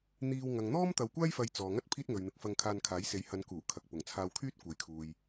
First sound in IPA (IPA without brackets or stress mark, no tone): n̪